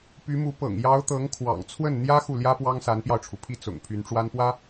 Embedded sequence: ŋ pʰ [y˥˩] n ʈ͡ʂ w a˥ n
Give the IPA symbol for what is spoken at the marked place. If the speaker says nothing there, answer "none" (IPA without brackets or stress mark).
y˧˥